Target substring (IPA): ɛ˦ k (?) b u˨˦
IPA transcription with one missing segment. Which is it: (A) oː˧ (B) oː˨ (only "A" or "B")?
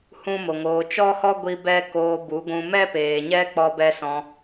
A